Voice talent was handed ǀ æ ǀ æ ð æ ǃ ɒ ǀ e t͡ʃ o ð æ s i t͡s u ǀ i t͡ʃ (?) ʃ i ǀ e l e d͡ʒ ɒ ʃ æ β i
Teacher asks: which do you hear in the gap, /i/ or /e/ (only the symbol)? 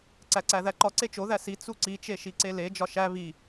e